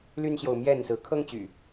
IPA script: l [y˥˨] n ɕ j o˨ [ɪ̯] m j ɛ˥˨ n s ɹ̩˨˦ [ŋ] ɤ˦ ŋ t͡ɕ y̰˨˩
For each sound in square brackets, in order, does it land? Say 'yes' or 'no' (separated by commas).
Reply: no, no, no